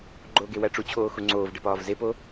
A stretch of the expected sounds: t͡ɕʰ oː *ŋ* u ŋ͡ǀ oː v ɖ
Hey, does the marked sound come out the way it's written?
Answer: no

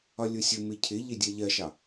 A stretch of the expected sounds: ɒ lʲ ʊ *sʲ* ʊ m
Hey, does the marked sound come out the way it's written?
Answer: yes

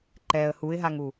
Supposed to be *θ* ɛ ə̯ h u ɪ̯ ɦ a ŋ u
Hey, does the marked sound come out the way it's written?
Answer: no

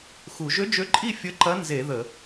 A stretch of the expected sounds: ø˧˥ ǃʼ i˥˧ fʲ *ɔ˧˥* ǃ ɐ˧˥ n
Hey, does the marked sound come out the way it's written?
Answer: no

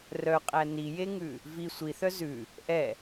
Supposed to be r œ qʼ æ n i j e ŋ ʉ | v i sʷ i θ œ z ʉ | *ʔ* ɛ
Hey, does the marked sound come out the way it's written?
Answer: yes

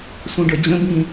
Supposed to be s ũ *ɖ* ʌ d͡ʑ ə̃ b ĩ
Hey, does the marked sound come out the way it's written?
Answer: yes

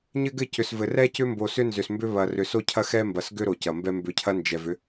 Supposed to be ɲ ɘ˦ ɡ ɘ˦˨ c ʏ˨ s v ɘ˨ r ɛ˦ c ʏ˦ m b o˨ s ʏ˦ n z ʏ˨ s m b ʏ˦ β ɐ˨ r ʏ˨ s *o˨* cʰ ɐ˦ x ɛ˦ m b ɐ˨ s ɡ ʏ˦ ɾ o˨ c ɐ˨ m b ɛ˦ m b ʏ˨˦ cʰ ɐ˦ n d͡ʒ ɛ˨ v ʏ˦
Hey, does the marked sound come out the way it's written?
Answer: no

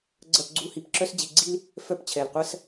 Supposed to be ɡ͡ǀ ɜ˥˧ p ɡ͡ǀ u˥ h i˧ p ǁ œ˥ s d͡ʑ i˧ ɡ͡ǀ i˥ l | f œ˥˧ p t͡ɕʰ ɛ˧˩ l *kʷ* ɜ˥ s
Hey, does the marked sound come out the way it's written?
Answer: no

